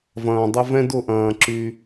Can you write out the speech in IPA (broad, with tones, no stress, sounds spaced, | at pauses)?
v ɐ̃ː˨ dˤ ə˧ v ɛ̃˦ d ʊ˦˨ ʔ ɐ̃ː˨ ǁ y˧